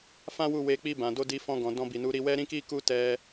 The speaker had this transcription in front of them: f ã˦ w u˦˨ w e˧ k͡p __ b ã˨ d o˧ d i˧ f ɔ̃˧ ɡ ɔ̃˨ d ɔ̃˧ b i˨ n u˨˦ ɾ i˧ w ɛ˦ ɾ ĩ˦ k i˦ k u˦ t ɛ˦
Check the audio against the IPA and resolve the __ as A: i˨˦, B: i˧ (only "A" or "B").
B